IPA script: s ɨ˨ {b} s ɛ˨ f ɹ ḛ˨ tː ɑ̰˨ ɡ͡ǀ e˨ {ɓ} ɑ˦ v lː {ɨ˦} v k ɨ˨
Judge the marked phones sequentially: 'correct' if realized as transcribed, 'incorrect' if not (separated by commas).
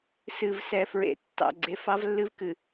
incorrect, incorrect, correct